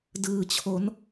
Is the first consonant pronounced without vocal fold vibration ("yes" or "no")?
no